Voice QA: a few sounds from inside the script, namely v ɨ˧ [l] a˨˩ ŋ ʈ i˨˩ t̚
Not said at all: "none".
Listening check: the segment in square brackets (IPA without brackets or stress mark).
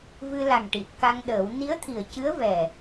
l